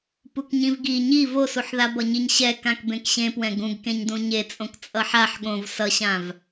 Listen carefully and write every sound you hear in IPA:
p u k ɲ ĩ v ɡ i ɲ i v o s u ħ ð a b ʌ ɲ i ɲ ɕ ɛ k ã k b ẽ k ɕ ẽ p w ɛ̃ ɡ ũ ɡ k ẽ ɲ d ũ ɲ e t͡sʼ õ k t͡sʼ ʌ ħ a ħ ɠ õ v s ʌ ɕ ã v

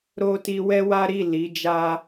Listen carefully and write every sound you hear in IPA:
ɾ o˦ t i˧ w ɛ˦ w a˦ ɾ i˦˨ l i˨˦ d͡ʒ a˦

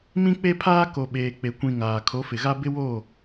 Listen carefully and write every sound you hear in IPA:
m ĩ˦ k͡p e˦ pʰ aː˦ k o˨ ɓ eː˨ k͡p e˨ kʷ ĩ˨ ŋ aː˨ kʰ o˨˦ f ɪ˨ ɣ a˦ b ɪ˦ w o˦˨

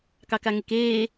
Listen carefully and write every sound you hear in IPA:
k ɑ k a ŋ e k eː

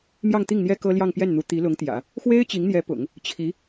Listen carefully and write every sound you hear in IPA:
m j ɑ˥˧ ŋ t̪ i˥˩ ŋ n̪ j ɛ˥ k ɤ˥ l j ɑ˥˧ ŋ p j ɛ˥˩ n n̪ u˧˥ t̪ i˧˥ l ʊ˧˥ ŋ t̪ j ä̰˨˩˦ | x w e˥ ɪ̯ t͡ɕ i˧˥ ŋ n̪ j ɛ˧˥ p ʊ̰˨˩˦ ŋ | t͡ɕʰ i˧˥

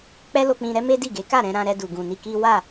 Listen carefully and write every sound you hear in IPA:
k͡p ɛ˦ l o˧ k͡p ĩ˧ ɾ ɛ˦ m e˦ d i˦˨ ɡ e˨˦ k a˦˨ ɾ ɛ̃˧ ɾ ã˧ ɾ ɛ˧ d u˨ ɡ ũ˨ n i˧ k i˦ w a˦˨

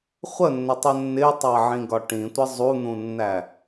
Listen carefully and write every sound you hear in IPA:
χʷ ə nː ɪ tˤ ə nː ɪ tˤ ɑ ʕ ĩ ɡ ɒ ʈ ĩ tʷ ɪ zˤ u n̪ ũ nː æ

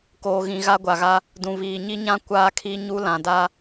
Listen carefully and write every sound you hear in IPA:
k oː˨ ɣ ĩ˨ ɣ a˦ ɡʷ a˨ ɣ a˦ | d ũ˨ β iː˨ ɲ i˦ ɲ ã˦ kʷ aː˦ kʰ i˦ ɲ u˦ l ã˨ d a˦

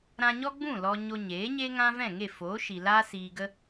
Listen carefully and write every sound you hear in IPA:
ɾ ã˧ ɲ ɔ˦ ɡ͡b ũ˦˨ l ɔ˧ ɲ o˧ ɲ eː˨˦ ɲ e˦ ŋ ã˦ v ɛ̃˦˨ ŋ e˦˨ f oː˨˦ ʃ i˨ l aː˦ s iː˧ ɡ ə˦

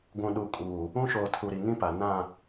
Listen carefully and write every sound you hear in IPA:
ɡʷ ũ˨ ɗ u˨ kʼ uː˨ | ũ˦ ʃ oː˨ tʰ u˨ ɾ i˨ ŋ ĩ˦ p a˨ n ã˦˨

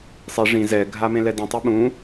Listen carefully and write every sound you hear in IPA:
sˤ i ʐ ĩ z ɛ ɡʱ a m ẽ l ɛ d ĩ tˤ i ɓ ũ

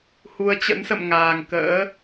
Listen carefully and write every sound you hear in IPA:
h u˨˦ ə̯ t͡ɕ ə̰˧˥ n s ə̰˧˨ m ŋ aː˨˩ ŋ k ə̰ː˧˥

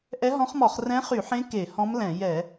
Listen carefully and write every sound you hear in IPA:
ʔ ɛ˧˥ ɦ ɔ̃˧˥ χ m ɔ˧˩˧ χ r ɛ̃˧˥ χ y˧˩˧ ħ ẽ˧˥ k e˧˩˧ h ɔ̃˧˥ m l ɛ̃˧˩˧ j ɛ˧˩˧

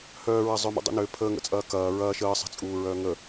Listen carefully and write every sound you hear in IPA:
h œː ɹ ɐ zˤ œ m ṵ dˤ ṵ n ø pʰ əː ŋ ə̰ t͡sʼ ɐː k ɐː ɹ ɐː ʃ əː sˤ ə̤ t͡sʼ uː ɹ œː ŋ ə

